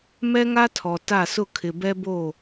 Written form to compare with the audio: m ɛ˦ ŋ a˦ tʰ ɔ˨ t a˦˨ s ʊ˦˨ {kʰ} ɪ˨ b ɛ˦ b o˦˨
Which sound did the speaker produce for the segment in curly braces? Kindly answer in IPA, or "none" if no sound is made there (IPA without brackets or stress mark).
kʰ